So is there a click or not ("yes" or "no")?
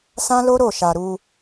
no